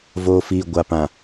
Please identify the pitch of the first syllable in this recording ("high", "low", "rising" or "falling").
low